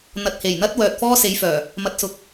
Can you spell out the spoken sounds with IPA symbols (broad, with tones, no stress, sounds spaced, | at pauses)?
n̪ ɐ˨ t̚ h e˨˩ j n̪ ɐ˥ t̚ w œː˨ t̚ f ɔː˥ s e˨˧ j f œː˨˩ | m ɐ˨ t̚ s ʊ˨ k̚